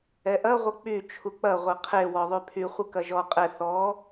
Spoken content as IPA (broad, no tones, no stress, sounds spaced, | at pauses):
ɛ ʔ ɐ ʁʷ ə k͡p y t͡ʃʰ u k͡p ɐ ʁʷ ə qʰ e w ɔ ðˤ y pʰ y χʷ ɯ k ɐ ʒ ɔ qʼ ɛ θ ɔ